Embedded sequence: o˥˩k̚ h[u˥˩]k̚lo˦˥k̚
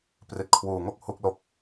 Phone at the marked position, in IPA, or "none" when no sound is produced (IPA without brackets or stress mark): u˦˥